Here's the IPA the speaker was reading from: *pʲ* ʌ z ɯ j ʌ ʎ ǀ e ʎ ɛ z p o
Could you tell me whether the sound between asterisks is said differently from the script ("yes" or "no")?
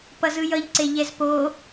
yes